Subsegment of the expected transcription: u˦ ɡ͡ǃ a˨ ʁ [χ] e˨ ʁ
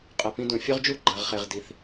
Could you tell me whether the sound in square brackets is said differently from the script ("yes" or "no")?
no